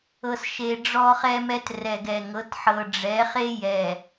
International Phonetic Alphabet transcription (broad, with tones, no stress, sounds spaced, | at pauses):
ɤ˨ s ʃ e˨ ɖ͡ʐ ɔ˦ χ ɛ˦ m ɛ˦ t r ɛ˨ ɡ ɛ˨ ŋ ɤ˨˦ t ħ ɤ˨ ɖ͡ʐ ɛ˨˦ χ e˦ j ɛ˨